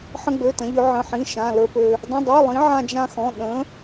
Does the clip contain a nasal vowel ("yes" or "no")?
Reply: yes